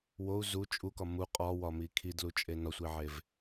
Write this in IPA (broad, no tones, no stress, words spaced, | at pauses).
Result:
wou̯ zu t͡ʃʼukɒ mu qʼɒwɒmi kʰidlut͡ʃʼe nɒsʷiʕev